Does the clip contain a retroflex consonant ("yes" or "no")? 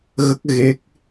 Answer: no